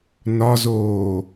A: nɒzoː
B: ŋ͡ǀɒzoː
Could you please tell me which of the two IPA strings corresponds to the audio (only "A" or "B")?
A